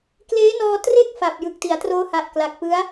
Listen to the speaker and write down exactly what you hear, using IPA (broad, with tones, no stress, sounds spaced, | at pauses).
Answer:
k l eː˦˥ n ɔː˧ t r e˥˩ k̚ f a˨˩ p̚ j ɯ˨˩ k̚ t i˩˦ a̯ t r oː˦˥ h a˨˩ ʔ k l a˨˩ k̚ p ɯ˦˥ a̯